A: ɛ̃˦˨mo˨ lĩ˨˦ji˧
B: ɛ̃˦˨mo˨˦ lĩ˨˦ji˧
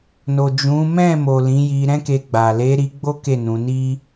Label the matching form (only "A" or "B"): A